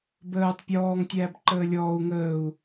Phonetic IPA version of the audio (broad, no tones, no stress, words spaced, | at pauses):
bəːtˤ pʲɔːŋ tʲæːbǃəːlʲɔːu̯ ŋəːu̯